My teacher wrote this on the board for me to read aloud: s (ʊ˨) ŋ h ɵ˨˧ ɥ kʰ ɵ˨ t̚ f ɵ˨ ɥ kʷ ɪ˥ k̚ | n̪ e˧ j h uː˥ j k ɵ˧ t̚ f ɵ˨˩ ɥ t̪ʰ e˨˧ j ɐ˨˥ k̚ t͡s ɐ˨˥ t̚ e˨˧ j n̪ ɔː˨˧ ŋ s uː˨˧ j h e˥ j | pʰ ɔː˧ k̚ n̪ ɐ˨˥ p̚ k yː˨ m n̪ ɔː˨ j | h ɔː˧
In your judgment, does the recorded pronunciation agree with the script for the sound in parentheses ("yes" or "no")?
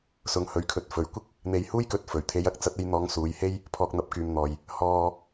no